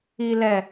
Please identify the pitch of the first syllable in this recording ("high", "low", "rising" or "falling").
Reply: low